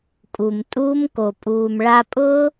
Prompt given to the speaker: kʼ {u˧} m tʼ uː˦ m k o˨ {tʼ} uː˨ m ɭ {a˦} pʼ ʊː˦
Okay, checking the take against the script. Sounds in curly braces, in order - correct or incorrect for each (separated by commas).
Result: incorrect, incorrect, incorrect